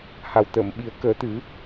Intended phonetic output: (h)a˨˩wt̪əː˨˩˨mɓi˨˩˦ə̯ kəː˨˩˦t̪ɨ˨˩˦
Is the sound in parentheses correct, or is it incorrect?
correct